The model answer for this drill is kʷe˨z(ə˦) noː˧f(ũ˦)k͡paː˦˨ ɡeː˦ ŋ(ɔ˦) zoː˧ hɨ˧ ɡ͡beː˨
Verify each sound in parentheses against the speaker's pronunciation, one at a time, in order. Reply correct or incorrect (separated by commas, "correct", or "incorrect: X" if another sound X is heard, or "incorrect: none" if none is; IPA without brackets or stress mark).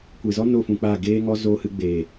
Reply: incorrect: ɔ˦, incorrect: ũ˨, correct